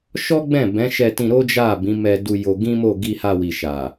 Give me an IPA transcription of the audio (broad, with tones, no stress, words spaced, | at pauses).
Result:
ʃɔ˦ɡ͡bɛ̃˦˨ bɛ̃˨˦ʃɛ˧tĩ˧ ɾo˦d͡ʒa˦˨ bĩ˨˦mɛ˧ du˧ jo˧ɡĩ˦mo˦˨ ɡi˧ha˧wi˨ ʃa˨